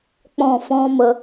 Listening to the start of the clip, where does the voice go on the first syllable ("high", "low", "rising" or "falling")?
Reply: falling